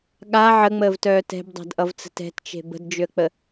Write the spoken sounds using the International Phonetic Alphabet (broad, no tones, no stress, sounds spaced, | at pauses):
ɠ a ʕ ə ŋ͡m əː v t œː t ɛ̤ b dˤ a̤ d ʔ ʌ v t͡s ə̤ t ɛ̤ t t͡ʃ e̤ b ə̤ d d͡ʒ ʏ ə̯ k͡p ə